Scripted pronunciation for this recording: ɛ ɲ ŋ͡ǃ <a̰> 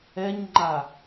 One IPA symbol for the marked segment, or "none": a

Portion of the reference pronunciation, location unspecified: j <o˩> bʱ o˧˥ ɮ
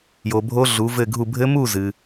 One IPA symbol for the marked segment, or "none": o˩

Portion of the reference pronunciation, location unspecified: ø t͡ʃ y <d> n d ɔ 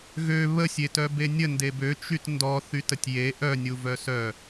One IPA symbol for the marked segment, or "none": t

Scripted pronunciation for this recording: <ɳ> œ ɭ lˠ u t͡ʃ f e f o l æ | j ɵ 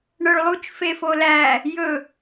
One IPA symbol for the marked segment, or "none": ɳ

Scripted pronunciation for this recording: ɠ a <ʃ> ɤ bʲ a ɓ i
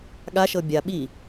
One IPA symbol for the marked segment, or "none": ʃ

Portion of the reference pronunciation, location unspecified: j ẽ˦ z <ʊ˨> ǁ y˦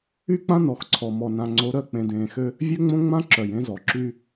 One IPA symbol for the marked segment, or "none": ɔ˨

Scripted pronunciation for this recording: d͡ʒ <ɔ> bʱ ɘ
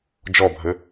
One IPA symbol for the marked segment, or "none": ɔ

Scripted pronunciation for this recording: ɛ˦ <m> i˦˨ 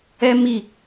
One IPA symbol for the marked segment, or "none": m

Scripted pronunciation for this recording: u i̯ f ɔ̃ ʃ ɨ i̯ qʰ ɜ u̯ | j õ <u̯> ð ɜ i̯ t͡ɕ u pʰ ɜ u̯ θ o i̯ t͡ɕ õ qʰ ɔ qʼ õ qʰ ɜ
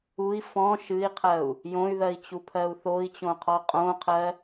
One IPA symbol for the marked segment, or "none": y̯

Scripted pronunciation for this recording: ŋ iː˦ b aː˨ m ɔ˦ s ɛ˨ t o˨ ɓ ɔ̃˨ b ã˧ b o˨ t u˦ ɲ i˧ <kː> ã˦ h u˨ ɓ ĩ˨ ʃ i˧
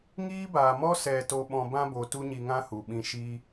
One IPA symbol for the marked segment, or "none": ŋ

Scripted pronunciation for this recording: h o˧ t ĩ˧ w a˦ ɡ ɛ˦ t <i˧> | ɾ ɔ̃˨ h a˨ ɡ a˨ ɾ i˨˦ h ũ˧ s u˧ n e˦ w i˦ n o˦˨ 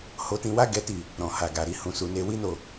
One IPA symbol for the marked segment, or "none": i˦˨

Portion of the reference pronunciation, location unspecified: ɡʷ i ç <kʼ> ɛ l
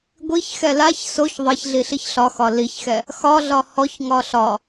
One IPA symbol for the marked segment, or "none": x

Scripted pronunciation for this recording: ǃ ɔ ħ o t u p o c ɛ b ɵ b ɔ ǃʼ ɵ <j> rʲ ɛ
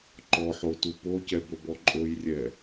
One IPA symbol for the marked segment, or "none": j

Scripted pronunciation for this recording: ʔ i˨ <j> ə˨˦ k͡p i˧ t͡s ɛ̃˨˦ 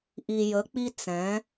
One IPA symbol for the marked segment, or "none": j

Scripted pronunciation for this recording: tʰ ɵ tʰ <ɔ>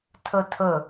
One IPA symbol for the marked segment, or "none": ɵ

